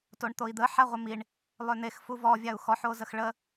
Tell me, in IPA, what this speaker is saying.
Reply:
t o ɳ t̪ o i̯ d̪ ə ħ a ʁʷ ə m i ɳ | lˠ ø n̪ e x f u v ɔ vʲ a u̯ x ɔ ħ o z ə x ɭ ə

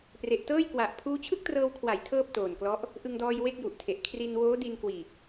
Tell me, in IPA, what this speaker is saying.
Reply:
p r e˨˩ ʔ t ɤː˥˩ j k w a˨˩ ʔ pʰ uː˦˥ t͡ɕʰ ɯ˥˩ k̚ t r ɤː˧ w kʰ w a˩˦ j tʰ ɤː˥˩ p̚ t oː˨˩ n k l ɔ˦˥ ʔ | ʔ ɯ˧ ŋ d ɔː˧ j w e˥˩ k̚ j u˨˩ ʔ tʰ e˨˩ ʔ kʰ r i˧ n w oː˦˥ d i˧ n k w iː˨˩ k̚

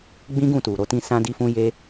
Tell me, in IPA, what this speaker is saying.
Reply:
ɡ͡b ĩ˦ ɡ ũ˦˨ t u˨ ɾ o˧ t ĩ˦ s ã˦ d i˦ f ũ˦ j e˦

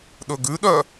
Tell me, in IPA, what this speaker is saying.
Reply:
ɗ ɵ ɡ ʉ ɗ œ

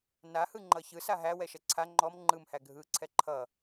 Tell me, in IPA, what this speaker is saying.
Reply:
n a h ɯ ŋ͡ǃ ʌ ç ɯ s a ɦ æ w ɛ ʃ ɛ ǀʰ a ŋ͡ǃ ɔ m ŋ͡ǃ ɯ m h æ ɡʱ ɯ ǀʰ ɛ ǃʰ ʌ

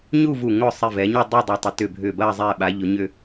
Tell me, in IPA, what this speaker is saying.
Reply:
ɲ u˥˧ v u˧˩ ŋ ʊ˧˩ sˤ i˧˩ v ɛ˩˧ ɲ ɐ˥˧ dˤ i˥˧ dˤ ɐ˧ tˤ ɪ˩˧ t ʏ˧˩ bʱ ʏ˧˩ b ɐ˥˧ zˤ ɛ˧˩ ɓ a˩˧ ʎ ʊ˩˧ ɲ ʏ˧

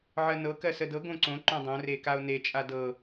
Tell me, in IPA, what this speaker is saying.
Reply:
ʕ ɜ n ɤ k ɜ s ə d ɤ ɡ õ ǀ õ ǃ œ̃ dˤ õ r e k a o̯ n e t͡ʃʼ a d ɤ

